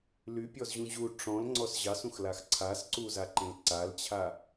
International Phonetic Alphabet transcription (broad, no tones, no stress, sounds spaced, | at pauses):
l y pʲ ɔ z ʑ ũ ʑ u ʈ͡ʂ ɔ̃ l ŋ͡ǀ ɔ s ʑ ɑ s ũ x l a x ǀʰ a s ǀ u z a ǃ ẽ l ǀ a l t͡ɕʰ a